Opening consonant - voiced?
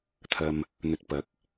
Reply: no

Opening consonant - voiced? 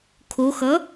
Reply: no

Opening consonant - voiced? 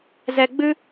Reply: yes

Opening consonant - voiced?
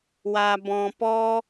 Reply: yes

